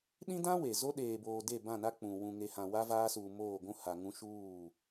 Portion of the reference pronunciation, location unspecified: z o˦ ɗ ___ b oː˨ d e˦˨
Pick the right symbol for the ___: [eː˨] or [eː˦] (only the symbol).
eː˨